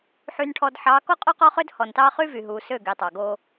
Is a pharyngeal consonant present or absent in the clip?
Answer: present